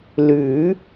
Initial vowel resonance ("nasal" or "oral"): oral